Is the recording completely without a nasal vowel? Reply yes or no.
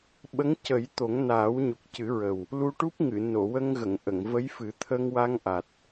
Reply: yes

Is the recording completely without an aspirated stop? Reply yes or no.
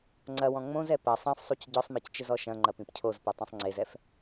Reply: no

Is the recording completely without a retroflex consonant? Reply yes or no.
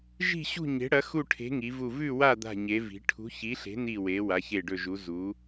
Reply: no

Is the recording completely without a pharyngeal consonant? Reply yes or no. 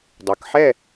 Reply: no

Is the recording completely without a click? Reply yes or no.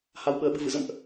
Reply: yes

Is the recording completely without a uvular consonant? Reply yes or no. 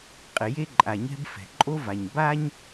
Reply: no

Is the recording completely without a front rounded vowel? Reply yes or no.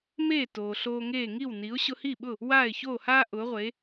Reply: yes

